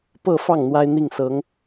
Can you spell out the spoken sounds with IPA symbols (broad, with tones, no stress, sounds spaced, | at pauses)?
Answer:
p ɤ˥˧ f ɑ˥˩ ŋ n̪ w a˥ ɪ̯ n̪ i˥˩ ŋ s ɤ˧˥ ŋ